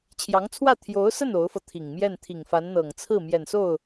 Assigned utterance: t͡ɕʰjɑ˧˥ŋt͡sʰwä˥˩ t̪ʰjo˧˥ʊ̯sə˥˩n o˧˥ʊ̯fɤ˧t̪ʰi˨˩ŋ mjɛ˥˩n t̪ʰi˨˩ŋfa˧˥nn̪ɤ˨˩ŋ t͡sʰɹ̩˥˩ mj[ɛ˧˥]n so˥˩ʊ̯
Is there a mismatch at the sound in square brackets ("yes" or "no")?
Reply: yes